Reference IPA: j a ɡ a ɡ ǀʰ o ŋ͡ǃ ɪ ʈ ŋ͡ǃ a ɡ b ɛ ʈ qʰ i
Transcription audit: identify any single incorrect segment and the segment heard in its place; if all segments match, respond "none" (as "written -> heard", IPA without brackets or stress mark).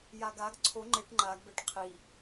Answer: none